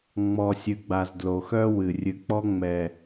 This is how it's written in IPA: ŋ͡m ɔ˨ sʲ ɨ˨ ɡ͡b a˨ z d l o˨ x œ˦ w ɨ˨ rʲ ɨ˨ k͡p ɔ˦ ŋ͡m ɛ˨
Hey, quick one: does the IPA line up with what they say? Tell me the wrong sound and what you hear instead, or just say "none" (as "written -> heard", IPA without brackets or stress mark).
none